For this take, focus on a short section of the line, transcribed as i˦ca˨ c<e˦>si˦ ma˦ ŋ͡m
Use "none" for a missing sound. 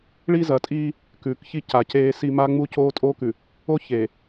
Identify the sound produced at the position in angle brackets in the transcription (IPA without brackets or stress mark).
eː˦